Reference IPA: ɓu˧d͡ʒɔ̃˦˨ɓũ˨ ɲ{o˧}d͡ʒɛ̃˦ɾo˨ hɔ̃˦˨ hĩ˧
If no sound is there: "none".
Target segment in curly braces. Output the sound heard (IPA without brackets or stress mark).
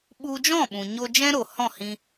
o˧